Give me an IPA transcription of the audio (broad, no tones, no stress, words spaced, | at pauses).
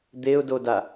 d̪eʊ̯doda